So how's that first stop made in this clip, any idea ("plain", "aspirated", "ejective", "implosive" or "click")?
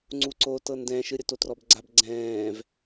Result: click